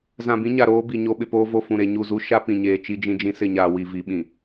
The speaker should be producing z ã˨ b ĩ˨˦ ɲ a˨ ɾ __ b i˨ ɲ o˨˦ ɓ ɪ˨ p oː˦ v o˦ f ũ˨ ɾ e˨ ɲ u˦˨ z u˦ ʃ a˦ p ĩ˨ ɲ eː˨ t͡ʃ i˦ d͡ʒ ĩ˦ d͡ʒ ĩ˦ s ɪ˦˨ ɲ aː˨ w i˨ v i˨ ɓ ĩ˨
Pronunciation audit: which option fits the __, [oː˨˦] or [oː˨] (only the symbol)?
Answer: oː˨˦